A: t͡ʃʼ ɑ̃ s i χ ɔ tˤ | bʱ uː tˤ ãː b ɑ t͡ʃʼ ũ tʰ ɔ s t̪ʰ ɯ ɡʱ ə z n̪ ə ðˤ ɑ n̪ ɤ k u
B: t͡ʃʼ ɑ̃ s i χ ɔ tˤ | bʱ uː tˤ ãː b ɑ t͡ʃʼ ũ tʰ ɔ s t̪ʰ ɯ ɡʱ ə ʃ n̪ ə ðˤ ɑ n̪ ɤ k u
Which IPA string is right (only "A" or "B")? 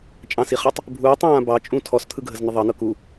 A